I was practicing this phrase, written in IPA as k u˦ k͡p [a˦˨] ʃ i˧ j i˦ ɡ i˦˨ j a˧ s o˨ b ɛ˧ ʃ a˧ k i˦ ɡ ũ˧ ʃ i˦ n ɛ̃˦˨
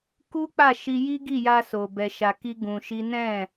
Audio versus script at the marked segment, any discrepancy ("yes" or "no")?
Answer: no